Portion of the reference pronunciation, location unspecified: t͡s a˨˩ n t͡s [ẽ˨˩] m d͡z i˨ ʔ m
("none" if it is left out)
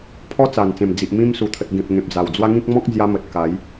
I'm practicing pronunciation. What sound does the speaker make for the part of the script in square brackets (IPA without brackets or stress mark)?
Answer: ẽ˨˩